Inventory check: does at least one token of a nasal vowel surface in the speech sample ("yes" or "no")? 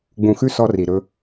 yes